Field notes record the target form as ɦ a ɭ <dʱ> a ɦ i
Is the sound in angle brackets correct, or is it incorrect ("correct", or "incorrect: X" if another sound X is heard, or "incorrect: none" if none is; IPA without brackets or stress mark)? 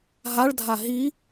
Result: correct